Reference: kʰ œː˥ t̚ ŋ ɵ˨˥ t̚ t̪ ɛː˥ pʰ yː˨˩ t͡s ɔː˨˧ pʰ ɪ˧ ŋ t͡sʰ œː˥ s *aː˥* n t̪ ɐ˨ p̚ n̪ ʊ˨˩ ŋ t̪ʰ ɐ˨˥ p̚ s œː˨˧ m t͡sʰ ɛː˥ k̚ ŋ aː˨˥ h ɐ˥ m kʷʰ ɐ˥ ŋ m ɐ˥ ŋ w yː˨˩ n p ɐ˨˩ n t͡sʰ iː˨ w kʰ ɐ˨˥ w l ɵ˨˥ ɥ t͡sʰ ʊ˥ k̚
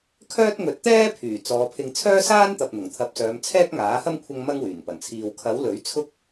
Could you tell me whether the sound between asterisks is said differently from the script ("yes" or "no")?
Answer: no